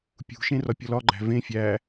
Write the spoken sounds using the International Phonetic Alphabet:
pʲṳʃẽ rɒpʲɒlɒɡ͡ǃæ̤ vẽ fʲæ

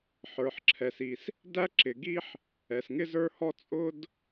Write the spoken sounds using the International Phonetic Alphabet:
ħə˞˩ħǁʰɛ˩si˩s | dæ˥ǁɪ˩ɡi˥ħ | ɛ˩sŋɪ˥zə˞˥hɔ˥ t͡sʼʊ˥d

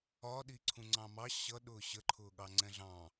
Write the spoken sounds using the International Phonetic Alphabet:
ɒ ɗiǀʰũŋ͡ǀɑ̃mɑ ɕʌ ɗʊːɕə ǃʰʊːɠɑŋ͡ǀɛ̃ɮɑ̃

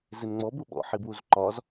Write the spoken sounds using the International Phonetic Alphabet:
zɪnŋ͡mɔbuɓɔ̰ ħibwuzǃɒz

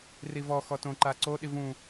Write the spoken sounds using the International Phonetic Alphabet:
rivɔxɔ tõ ǃaǀoɗi vũ

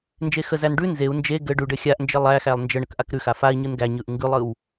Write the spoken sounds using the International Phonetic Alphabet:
nd͡ʒexəzæn ɖʉ nzeu̯ nd͡ʒe ɡɘ ɖʉɖɘ xʲaʔnd͡ʒɘ lˠæxælˠ nd͡ʒə ɳəkʔakɾʉxa fai̯ɲɯn ɡæɲɯʔ ŋɡʉlˠɯw

